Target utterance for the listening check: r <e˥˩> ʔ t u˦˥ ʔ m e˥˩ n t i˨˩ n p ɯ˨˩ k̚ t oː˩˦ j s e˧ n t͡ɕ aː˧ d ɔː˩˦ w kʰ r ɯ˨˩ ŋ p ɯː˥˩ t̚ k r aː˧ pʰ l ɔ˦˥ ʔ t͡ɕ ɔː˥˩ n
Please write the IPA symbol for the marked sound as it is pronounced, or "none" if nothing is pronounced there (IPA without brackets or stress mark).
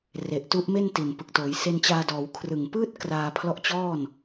e˨˩